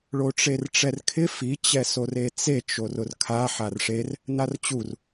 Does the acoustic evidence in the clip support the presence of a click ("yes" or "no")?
no